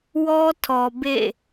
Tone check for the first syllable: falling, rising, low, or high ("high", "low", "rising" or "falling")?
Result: high